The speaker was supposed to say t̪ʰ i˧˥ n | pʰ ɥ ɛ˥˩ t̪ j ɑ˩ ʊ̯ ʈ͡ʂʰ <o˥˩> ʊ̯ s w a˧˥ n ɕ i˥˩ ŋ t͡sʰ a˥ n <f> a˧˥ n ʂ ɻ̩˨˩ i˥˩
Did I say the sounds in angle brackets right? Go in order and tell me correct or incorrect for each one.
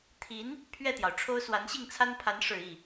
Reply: incorrect, incorrect

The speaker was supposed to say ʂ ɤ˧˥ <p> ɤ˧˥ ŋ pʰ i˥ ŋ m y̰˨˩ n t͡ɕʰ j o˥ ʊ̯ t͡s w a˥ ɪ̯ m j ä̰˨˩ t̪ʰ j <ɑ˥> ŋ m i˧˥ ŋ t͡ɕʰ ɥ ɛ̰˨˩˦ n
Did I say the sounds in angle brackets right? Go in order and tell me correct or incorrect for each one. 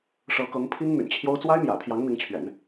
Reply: incorrect, incorrect

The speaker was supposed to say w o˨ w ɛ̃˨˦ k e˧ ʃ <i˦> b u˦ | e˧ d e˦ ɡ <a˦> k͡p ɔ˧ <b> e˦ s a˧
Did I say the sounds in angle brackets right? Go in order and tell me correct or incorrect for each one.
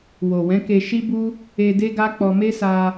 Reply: correct, correct, incorrect

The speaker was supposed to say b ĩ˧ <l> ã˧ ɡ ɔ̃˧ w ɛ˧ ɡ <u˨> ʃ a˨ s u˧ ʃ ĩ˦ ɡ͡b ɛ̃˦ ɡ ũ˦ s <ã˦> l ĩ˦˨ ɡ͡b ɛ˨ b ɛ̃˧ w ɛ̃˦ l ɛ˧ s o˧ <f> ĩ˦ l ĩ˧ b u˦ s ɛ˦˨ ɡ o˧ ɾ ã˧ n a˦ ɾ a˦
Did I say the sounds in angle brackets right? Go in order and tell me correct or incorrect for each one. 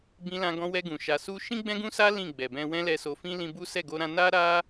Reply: correct, incorrect, incorrect, correct

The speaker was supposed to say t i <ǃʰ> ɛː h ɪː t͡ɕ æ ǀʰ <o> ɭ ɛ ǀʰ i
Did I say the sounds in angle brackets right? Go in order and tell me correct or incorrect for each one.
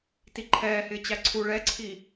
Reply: correct, incorrect

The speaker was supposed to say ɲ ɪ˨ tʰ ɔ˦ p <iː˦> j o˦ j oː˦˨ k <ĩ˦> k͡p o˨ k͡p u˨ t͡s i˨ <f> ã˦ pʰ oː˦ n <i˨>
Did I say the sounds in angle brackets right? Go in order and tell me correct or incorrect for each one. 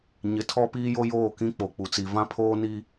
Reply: correct, correct, incorrect, incorrect

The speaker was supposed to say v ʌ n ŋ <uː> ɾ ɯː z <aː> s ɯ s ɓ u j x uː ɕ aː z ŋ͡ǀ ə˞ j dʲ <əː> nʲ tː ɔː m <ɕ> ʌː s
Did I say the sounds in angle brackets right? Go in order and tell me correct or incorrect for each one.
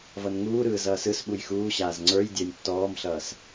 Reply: correct, incorrect, correct, incorrect

